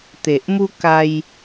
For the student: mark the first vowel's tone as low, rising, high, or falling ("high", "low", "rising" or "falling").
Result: low